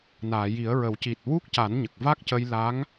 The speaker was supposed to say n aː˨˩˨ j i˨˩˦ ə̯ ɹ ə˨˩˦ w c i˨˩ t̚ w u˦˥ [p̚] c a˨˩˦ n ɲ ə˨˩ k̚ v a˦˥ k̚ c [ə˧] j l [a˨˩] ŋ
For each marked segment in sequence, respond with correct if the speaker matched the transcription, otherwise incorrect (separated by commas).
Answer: incorrect, correct, incorrect